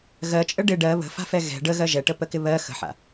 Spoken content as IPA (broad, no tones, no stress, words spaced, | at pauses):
ɣɜt͡ʃʼə ɖɪ ɖɜ βə̤fa̤fɛ ɣɛ̤ ɖəɣɜ ʒɛʈəpəkɪ βɜ xə̤ħa̰